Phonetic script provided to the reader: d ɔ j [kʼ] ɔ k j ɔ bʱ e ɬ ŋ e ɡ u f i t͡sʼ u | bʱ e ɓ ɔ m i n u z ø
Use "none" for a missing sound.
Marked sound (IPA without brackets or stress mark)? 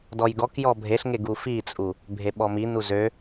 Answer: ɡ